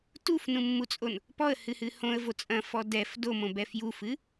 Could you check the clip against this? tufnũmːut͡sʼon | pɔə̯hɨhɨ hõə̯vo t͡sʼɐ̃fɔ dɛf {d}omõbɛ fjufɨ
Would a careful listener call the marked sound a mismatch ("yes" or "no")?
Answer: no